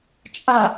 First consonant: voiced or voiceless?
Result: voiceless